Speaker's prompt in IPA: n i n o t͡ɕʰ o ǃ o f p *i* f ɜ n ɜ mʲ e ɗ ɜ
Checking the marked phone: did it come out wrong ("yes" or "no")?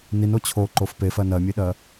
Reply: yes